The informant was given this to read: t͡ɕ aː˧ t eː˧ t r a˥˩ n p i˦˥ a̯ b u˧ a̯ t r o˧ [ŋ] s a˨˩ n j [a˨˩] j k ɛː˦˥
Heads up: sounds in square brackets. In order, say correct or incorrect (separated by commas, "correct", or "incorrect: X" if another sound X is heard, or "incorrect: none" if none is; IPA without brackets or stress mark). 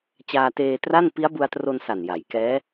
incorrect: n, incorrect: a˩˦